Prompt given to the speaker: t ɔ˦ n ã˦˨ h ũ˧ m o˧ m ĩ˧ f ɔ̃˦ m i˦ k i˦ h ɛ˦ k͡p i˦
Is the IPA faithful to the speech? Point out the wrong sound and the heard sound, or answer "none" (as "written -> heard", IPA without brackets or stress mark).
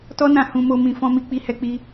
k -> k͡p